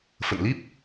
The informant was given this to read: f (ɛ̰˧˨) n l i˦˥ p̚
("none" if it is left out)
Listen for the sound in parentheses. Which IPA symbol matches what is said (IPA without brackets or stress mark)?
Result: ə̰˧˨